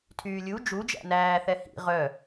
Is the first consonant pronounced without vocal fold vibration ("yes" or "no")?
yes